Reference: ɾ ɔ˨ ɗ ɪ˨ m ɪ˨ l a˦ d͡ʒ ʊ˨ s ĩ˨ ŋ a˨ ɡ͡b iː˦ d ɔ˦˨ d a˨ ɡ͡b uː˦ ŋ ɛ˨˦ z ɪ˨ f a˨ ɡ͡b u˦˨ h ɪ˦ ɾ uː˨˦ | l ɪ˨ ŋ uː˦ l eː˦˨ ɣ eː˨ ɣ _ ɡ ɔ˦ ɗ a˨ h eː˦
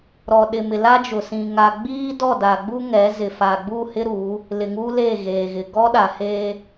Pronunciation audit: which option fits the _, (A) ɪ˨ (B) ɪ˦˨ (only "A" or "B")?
A